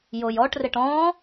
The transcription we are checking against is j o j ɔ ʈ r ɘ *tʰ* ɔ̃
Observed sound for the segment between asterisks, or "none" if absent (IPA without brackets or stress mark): ʈ